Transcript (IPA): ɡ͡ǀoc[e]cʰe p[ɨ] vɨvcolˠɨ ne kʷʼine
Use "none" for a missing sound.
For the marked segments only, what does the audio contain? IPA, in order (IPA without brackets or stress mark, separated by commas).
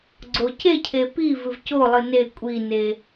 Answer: e, i